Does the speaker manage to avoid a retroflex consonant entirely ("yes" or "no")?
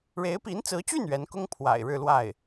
no